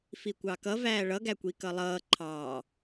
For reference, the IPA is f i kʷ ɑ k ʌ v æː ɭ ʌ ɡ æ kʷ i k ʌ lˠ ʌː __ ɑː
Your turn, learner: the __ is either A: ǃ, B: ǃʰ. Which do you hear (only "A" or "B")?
B